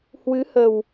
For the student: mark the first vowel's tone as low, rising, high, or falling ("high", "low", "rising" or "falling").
rising